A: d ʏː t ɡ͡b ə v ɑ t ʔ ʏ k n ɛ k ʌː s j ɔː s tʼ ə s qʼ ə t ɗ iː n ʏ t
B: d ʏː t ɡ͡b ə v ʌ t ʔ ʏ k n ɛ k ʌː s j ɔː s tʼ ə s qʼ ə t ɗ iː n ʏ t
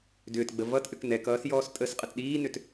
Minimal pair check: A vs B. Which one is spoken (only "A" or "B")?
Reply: B